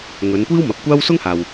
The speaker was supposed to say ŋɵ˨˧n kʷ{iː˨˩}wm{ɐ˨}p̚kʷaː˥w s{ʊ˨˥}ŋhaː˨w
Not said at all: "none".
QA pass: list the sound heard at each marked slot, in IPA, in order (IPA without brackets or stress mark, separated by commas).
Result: iː˥, ɐ˨, ʊ˥